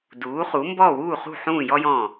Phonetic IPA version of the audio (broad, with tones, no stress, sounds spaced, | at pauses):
d uː˩˥ χ u˩˥ m b ɔː˥˩ w uː˥˩ χ ṳ˥˩ ħ ũː˥˩ j ɔ˥ j ɔ̃˥˩